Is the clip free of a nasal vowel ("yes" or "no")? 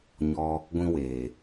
no